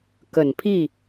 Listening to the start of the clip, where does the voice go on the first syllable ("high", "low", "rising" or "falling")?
low